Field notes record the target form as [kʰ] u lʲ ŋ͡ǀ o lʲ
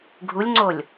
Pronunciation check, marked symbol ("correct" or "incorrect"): incorrect